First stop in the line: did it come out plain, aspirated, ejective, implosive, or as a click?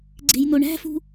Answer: click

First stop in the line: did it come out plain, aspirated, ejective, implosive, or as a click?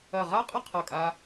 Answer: ejective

